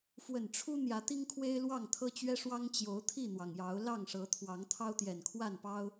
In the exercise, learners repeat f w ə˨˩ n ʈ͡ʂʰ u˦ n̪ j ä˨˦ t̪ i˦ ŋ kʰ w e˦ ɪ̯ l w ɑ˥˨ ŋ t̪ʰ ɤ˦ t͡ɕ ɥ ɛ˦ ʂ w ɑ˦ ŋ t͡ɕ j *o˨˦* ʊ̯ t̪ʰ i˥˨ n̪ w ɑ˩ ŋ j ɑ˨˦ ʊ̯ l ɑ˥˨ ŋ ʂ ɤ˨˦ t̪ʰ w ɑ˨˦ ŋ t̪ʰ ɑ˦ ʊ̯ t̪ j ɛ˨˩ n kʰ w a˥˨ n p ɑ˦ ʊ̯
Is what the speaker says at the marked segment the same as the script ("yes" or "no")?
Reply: yes